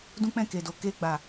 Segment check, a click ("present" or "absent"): absent